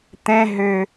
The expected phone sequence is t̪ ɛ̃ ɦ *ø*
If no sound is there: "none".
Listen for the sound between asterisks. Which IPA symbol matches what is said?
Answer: ø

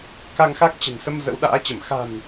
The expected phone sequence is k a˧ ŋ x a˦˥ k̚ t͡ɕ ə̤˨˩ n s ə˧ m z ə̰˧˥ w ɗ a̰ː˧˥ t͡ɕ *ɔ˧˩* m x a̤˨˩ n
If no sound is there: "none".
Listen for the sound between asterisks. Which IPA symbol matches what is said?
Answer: ə˧˩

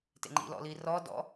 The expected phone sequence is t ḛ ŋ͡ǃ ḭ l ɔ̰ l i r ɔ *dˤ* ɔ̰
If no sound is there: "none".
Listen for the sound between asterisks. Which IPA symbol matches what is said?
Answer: d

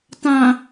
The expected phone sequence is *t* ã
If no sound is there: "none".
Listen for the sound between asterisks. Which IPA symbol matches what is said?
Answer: t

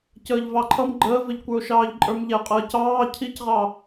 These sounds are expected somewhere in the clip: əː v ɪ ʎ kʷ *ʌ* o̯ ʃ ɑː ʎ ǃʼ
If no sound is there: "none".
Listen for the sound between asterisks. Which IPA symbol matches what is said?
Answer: ə˞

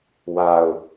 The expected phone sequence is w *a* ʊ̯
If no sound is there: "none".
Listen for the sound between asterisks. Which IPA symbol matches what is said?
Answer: a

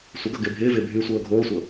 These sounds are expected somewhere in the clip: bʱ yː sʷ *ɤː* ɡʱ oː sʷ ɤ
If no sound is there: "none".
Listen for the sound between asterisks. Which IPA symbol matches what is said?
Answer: ɤː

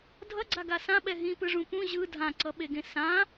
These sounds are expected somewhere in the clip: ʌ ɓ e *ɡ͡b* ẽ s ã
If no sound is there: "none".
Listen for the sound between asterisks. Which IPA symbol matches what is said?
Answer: ɡ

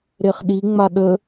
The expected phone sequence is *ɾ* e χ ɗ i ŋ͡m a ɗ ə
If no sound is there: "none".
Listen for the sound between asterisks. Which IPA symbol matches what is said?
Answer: ɾ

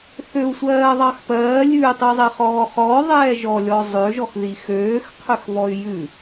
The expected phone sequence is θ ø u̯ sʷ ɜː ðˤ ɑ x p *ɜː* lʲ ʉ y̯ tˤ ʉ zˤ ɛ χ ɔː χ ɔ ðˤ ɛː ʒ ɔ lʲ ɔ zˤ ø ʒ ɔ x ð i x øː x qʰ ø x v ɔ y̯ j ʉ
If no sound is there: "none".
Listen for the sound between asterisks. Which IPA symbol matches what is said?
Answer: ɜː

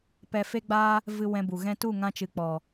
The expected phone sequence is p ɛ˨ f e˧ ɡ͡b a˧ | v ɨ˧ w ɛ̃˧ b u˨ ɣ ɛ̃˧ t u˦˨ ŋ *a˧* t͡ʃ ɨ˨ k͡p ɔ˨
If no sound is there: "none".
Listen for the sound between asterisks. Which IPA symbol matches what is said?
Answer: ã˧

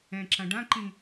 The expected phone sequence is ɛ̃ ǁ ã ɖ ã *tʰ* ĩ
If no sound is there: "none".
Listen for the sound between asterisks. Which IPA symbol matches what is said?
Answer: ǃ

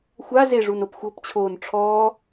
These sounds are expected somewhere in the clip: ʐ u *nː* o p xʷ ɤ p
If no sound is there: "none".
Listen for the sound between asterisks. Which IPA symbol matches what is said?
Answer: n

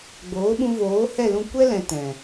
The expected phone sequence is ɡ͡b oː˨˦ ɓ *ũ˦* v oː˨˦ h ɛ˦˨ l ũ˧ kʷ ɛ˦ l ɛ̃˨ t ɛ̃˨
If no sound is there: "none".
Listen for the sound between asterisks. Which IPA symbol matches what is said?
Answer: ũ˧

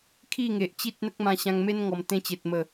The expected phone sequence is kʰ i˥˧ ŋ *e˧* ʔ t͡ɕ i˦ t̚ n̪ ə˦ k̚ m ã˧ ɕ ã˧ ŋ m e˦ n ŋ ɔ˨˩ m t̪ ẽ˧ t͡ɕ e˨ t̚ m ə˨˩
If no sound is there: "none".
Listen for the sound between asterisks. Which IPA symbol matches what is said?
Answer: e˨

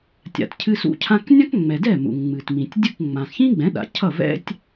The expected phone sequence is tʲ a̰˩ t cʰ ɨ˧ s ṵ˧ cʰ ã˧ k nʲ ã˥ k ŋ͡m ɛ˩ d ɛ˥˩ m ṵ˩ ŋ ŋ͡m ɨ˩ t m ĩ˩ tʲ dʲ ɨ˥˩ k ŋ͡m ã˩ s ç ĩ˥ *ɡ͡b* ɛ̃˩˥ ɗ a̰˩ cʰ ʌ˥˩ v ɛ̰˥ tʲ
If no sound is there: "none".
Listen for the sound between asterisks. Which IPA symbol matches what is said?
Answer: ɡ͡b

